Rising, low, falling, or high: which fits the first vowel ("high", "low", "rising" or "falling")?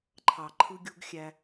low